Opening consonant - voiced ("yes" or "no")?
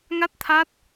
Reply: yes